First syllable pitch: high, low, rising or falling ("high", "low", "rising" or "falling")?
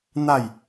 falling